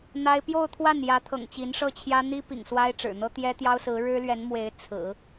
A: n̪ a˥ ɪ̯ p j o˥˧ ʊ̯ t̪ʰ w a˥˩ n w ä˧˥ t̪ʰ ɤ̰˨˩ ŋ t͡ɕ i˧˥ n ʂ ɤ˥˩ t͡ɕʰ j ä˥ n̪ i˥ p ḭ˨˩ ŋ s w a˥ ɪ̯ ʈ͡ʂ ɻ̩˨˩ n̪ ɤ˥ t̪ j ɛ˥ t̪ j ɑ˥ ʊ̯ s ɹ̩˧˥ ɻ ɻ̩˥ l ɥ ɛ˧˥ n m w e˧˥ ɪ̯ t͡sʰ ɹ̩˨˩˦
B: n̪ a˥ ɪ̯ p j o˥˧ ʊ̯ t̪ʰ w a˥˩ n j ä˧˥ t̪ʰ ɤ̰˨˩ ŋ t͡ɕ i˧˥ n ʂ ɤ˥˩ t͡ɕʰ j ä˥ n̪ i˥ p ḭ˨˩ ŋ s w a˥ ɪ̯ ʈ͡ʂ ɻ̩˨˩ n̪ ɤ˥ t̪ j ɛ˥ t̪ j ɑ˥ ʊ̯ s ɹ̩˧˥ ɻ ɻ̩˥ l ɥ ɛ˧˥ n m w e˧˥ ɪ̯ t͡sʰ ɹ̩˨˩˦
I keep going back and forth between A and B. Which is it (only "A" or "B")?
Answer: B